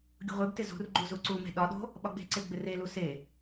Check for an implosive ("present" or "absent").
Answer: present